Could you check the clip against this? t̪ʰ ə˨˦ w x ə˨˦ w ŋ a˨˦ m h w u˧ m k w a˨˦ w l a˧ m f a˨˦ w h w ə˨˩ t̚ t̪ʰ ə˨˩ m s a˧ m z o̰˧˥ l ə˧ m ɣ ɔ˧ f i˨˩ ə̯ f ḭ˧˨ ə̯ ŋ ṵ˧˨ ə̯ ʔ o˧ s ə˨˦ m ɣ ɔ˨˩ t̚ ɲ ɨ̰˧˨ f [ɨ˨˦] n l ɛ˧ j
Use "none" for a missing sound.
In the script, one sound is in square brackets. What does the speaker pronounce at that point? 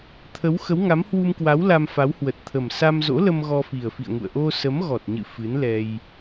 ɨ˨˦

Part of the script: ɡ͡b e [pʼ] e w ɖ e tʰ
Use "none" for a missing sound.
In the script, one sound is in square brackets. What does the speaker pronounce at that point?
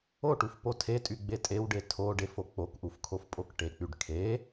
tʼ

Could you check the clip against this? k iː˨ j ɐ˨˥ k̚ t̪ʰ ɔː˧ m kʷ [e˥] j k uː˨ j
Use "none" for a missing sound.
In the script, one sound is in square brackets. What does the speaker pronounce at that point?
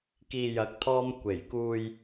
e˨˩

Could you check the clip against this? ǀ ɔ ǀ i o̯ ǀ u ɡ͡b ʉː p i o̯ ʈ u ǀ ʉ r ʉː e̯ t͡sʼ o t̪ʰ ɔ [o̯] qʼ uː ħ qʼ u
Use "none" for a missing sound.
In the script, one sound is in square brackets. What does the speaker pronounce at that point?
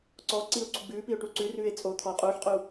o̯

